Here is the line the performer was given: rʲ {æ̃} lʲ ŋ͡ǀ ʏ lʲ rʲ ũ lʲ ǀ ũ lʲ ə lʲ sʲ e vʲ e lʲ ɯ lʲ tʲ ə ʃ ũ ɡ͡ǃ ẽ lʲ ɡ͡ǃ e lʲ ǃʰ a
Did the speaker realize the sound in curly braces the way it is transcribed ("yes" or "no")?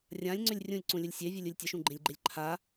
no